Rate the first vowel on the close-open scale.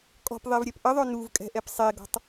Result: mid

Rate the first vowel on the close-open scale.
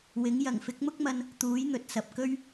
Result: close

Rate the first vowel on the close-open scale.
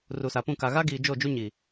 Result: close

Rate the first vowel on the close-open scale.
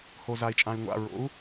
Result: mid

